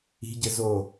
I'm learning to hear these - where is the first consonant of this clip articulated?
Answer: palate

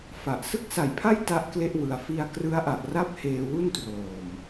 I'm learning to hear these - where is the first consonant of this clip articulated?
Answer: lips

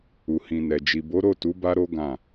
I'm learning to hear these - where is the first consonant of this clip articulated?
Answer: throat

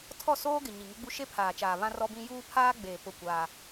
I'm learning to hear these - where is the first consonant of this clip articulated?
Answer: tongue tip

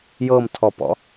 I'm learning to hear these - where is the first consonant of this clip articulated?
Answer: palate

